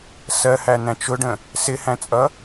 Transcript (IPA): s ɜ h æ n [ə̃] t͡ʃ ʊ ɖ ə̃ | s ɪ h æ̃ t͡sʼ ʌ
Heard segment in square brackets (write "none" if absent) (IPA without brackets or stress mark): æ̃